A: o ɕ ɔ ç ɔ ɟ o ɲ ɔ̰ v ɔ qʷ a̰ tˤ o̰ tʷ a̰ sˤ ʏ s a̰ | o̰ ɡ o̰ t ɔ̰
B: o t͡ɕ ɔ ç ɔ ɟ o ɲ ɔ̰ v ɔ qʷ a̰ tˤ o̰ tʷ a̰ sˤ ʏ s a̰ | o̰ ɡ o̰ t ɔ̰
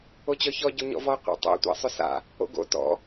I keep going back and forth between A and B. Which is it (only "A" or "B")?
B